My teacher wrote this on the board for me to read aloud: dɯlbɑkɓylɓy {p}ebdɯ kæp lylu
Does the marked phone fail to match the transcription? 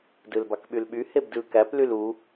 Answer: yes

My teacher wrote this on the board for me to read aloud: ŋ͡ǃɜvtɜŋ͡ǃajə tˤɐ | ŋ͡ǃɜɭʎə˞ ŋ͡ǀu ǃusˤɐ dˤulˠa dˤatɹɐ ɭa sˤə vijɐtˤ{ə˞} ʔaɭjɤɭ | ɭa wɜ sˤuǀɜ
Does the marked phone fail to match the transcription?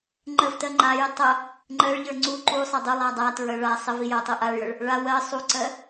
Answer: yes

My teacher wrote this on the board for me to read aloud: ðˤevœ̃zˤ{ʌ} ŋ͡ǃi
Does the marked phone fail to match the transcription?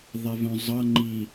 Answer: no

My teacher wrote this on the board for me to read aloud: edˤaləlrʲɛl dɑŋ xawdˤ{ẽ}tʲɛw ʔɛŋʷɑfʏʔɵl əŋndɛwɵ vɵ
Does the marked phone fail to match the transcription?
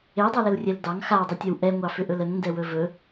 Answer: yes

